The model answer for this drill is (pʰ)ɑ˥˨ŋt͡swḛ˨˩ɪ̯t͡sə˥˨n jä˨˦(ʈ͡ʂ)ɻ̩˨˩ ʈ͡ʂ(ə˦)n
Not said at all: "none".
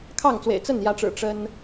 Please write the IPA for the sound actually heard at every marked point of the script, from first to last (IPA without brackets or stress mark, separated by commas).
kʰ, ʈ͡ʂ, ə˦